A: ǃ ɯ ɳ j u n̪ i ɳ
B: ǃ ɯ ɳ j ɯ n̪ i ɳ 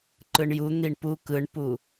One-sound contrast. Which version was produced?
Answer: A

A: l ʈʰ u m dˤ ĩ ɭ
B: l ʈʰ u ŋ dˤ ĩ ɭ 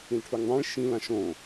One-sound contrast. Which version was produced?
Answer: B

